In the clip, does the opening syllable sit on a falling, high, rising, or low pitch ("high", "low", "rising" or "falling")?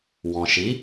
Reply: low